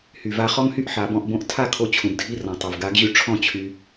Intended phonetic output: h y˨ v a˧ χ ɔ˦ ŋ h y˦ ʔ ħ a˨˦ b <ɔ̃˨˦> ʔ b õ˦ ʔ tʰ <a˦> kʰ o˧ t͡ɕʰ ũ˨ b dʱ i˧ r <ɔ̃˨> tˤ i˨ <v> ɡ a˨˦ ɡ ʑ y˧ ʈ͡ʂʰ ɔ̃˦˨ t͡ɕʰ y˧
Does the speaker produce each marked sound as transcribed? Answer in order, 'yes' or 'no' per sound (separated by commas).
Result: no, no, yes, yes